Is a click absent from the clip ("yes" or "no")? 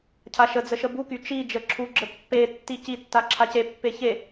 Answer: no